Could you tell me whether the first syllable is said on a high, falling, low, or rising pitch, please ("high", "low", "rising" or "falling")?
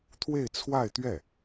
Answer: falling